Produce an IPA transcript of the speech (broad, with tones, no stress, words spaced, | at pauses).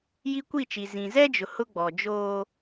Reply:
ji˦kʷi˦˨t͡ʃi˨ zĩ˨zɛ˦d͡ʒʊ˨ hʊ˦ɡ͡bɔ˨ d͡ʒoː˦